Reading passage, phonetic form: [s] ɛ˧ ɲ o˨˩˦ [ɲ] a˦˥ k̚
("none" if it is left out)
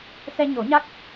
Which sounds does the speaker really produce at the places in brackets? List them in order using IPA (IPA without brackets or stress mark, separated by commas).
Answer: s, ɲ